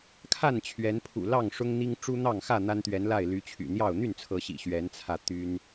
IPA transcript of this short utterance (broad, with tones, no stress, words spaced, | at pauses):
kʰa˥˨nt͡ɕʰɥɛ˨˦npʰṵ˨˩lɑ˥˨ŋ ʂʊ˦ŋn̪i˦ŋ ʈ͡ʂu˦n̪ɑ˥˨ŋxä˥˨ n̪a˦nt̪ɥɛ˨˦nla˥˨ɪ̯ ly˨˦t͡ɕʰy̰˨˩n̪jɑ˥˨ʊ̯ n̪y˥˨nt͡sʰɤ˨˦ɕḭ˨˩ ɕɥɛ˨˦nt͡sʰä˧ t̪y˦n